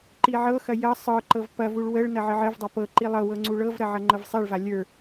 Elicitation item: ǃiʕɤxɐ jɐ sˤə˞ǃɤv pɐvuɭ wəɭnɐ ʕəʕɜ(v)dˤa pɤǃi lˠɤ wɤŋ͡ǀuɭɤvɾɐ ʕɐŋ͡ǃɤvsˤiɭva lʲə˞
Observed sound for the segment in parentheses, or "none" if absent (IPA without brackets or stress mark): v